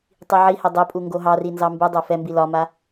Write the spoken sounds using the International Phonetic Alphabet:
tˤ i ʕ i h ɛ dˤ e pʼ u ŋ ɡ o ɦ ɑ r i n z ɑ m b u dˤ o f ɛ m b i l ɒ m a

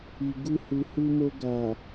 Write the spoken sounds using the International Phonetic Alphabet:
i˨ ɡ u˧ h u˨ h u˧ m o˧ ɡ a˨

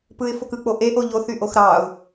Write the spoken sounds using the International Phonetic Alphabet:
p ɯ ɪ̯ f o k ɯ k͡p o ʔ e ʔ o ʎ o θ y ʔ o x ɾ ɑ ʊ̯

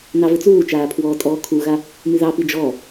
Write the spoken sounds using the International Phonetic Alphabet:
n ɑ v ɘ t͡s uː t͡ʃ aː pʰ w ɔː tʼ ɔː kʰ u ɣ a | m y ð ɑ p i d͡ʒ ɔ

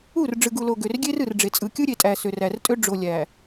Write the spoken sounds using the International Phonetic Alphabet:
u˦˨ r ɖ͡ʐ ɯ˨ ɡ u˨ l o˨ ɡ ø˨ r ɡʲ e˦ r ɯ˨ r ɖ͡ʐ e˨ t͡sʼ ɯ˨ kʲ ɯ˦ ɾʲ e˨ tʼ æ˨ s ø˨ r æ˨ r tʼ ø˦ ɖ͡ʐ o˨ lʲ æ˨

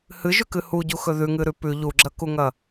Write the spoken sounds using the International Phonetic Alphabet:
h ɨ ʒ ʉ k ɨ h u ɟ u x ɵ ð ʉ ŋ ɨ ɾ ʉ p ʉ ʎ u ɡ͡ǁ ɐ k u ŋ ɐ

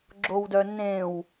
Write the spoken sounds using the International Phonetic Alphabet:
ɡ͡ǁ o w d œ nː ẽ w

